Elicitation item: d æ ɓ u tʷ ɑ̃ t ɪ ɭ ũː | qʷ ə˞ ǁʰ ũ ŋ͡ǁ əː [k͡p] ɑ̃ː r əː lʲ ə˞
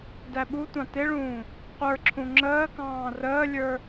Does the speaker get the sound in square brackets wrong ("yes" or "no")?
yes